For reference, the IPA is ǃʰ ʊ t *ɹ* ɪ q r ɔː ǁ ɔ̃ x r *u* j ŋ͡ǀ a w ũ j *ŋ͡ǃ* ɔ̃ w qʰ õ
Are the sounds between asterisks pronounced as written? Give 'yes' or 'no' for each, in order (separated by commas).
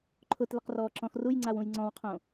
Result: no, yes, no